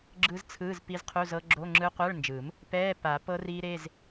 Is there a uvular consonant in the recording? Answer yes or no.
yes